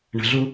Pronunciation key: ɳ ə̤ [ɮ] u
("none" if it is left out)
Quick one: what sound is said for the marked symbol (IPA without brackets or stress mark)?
ɮ